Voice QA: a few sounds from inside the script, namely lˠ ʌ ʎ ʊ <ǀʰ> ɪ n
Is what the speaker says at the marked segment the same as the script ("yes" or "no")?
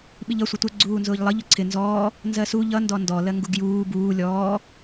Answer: yes